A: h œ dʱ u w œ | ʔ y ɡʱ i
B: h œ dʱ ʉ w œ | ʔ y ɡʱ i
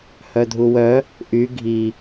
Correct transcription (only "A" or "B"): A